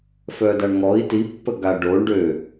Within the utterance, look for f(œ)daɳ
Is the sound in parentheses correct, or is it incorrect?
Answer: correct